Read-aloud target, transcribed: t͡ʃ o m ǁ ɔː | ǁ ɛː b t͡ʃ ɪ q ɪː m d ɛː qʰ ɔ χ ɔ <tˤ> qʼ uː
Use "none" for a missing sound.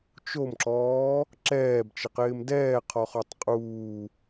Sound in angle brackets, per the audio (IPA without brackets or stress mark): tˤ